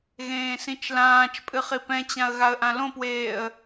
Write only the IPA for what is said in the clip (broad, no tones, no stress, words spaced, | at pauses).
ɣẽːsĩt͡ʃlãːt͡ʃpʼɨ χipɛ̃t͡ɕãə̯ ɣaə̯ʔãlõpweːə̯